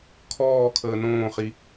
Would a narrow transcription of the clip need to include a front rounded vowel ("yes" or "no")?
no